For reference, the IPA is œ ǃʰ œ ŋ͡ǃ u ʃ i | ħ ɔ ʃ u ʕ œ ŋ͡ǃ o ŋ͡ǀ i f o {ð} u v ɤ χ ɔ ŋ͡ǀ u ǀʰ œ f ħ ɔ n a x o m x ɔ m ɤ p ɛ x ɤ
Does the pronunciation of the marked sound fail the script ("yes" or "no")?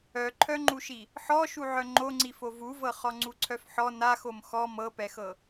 yes